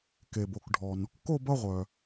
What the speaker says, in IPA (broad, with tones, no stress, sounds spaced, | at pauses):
k e˩ b o˩ k ɖʱ ɔ˩ n | k o˥˧ b ʌ˥˧ ʁʷ œ˩